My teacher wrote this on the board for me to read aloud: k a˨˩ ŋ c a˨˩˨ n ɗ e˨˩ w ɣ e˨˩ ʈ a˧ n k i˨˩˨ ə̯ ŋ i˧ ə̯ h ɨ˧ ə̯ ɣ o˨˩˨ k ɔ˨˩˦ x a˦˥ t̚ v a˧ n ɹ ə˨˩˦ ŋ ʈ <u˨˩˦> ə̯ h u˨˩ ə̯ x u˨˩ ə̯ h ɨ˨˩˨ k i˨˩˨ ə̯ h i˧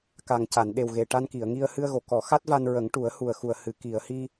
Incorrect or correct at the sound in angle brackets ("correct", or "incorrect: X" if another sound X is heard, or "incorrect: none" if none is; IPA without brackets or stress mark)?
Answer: correct